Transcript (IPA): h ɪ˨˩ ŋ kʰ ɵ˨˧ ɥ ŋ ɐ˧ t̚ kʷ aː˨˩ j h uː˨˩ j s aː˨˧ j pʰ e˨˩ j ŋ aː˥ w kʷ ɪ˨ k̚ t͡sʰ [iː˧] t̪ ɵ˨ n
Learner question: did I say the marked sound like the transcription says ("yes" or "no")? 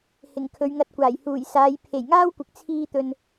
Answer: yes